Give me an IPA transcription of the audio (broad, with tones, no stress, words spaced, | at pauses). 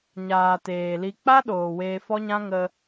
ɲaː˨teː˨li˧ k͡pa˦ɗoː˨ weː˧fɔ˦ɲã˦ ŋə˧